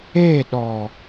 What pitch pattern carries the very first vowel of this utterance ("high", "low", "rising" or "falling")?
falling